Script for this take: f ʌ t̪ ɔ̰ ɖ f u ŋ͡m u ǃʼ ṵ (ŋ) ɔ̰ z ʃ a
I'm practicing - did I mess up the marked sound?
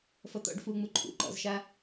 yes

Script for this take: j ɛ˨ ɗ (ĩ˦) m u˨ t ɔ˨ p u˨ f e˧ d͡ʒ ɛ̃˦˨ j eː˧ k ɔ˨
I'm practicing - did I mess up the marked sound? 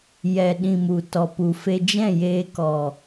yes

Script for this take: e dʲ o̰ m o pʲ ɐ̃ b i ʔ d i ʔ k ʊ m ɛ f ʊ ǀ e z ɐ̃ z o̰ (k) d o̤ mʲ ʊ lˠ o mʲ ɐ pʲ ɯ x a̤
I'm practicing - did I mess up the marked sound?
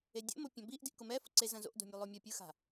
yes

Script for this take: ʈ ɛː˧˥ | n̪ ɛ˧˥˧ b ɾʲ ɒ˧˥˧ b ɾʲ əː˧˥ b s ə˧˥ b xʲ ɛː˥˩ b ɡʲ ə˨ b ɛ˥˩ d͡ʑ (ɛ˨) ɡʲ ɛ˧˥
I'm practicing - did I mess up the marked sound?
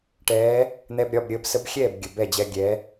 yes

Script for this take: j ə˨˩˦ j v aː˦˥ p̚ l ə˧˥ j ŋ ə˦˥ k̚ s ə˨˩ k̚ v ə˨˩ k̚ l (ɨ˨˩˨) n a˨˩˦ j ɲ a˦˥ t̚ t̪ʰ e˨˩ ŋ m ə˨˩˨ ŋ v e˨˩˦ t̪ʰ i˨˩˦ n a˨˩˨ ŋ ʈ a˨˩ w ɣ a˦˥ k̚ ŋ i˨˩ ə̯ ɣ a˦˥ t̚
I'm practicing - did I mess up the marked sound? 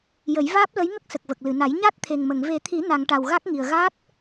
no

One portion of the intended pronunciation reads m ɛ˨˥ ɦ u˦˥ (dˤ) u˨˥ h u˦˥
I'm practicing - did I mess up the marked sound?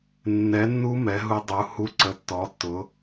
no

